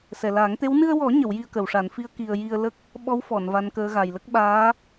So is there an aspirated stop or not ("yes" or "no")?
no